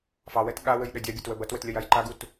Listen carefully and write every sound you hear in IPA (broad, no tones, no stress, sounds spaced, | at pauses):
f ɑ w ɛ t ɠ a w ɘ j ɗ ə dʲ a bʲ ɐ t w ə b ɐ t w ɘ t lʲ ɐ j a j ǃ a ɡ u t